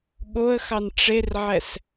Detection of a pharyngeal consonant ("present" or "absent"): present